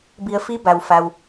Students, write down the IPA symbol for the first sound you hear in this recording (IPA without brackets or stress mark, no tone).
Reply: b